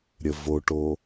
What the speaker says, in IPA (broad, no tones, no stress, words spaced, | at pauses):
ɾʲəvoʈo